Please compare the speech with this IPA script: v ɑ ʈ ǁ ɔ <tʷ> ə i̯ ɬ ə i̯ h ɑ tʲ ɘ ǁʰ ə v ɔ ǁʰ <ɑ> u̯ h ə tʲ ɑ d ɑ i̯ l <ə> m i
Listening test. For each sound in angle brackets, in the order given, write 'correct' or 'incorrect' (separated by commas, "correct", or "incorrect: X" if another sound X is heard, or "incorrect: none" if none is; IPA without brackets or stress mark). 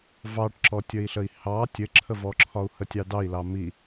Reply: incorrect: tʲ, incorrect: ɒ, incorrect: ɑ